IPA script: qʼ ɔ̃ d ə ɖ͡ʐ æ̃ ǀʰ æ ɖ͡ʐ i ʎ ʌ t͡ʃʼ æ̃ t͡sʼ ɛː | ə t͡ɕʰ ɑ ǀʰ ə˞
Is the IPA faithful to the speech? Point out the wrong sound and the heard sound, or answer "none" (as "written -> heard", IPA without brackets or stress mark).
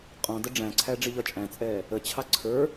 none